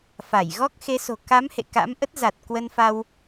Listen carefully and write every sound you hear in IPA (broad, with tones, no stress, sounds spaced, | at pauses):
f a˧˩ j ɣ ɔ˦˥ k̚ x e˨˦ s o̤˨˩ k a˨˦ m h ḛ˧˨ k a̰˧˥ m ʔ ə˦˥ t̚ z a˨˩ t̚ k w ə˧ n f a˧ w